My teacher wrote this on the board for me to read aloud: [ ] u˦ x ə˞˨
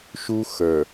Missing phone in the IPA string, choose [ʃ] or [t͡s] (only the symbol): ʃ